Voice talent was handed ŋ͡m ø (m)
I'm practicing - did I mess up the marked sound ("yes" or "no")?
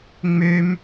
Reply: no